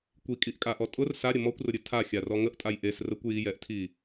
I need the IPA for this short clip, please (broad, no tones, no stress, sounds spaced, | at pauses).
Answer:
kʷ i kʼ i ʔ kʼ a ʔ ɔ tʼ ʊ r s a ɾʲ ə m ɔ kʷ r ʊ ɾʲ ɨ tʰ a xʲ a r ɔ ŋ ə ʔ tʼ a j ʔ e s r ə kʷ j i j ɛ ʔ tʰ i